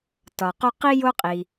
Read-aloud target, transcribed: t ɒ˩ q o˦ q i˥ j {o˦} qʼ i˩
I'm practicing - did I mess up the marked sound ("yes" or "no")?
no